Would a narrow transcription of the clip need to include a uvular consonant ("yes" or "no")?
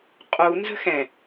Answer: yes